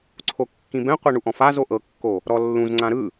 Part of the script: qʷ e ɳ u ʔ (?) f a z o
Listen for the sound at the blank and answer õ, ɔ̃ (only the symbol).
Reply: ɔ̃